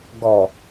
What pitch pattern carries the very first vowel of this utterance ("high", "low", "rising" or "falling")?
low